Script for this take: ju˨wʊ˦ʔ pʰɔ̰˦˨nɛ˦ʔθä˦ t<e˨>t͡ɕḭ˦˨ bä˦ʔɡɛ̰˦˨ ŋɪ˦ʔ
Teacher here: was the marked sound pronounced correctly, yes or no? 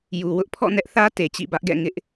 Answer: yes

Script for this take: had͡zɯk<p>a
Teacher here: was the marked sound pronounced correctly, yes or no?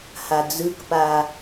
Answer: yes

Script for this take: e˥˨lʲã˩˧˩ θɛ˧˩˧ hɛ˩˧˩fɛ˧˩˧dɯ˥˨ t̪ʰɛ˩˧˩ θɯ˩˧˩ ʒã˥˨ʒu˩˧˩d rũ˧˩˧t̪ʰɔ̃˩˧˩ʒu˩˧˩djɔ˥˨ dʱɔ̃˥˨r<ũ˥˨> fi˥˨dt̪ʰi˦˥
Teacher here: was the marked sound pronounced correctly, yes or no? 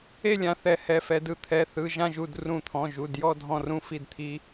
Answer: yes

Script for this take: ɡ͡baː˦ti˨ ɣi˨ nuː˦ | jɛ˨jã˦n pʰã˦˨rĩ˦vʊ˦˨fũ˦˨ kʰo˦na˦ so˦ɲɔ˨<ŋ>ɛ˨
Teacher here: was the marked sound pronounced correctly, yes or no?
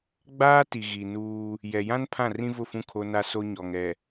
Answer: yes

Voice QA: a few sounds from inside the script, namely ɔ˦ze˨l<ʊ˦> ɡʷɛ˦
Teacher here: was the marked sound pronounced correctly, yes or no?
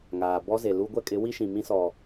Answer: no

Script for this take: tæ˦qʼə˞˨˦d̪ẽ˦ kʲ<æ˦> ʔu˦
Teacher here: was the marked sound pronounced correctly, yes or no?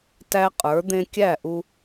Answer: no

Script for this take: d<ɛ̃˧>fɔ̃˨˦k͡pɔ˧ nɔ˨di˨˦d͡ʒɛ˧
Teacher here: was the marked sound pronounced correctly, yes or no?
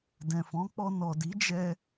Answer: no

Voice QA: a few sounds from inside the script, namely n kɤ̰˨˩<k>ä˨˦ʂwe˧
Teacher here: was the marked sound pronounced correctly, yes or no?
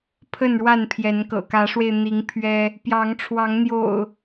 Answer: yes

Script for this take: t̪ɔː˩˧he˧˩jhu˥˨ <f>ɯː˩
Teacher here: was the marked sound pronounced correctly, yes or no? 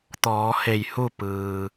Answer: no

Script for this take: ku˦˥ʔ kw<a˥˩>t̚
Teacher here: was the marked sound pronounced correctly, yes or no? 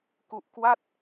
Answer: yes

